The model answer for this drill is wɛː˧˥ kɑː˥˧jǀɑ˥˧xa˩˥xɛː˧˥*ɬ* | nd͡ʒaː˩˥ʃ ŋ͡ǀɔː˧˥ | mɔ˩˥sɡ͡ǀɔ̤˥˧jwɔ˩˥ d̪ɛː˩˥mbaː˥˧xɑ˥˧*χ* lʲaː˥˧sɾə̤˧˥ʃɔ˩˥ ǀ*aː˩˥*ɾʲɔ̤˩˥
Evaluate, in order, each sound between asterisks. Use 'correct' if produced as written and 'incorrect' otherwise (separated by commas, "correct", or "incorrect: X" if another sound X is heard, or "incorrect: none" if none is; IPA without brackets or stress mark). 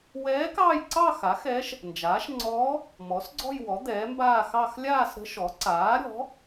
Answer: incorrect: ʃ, incorrect: x, correct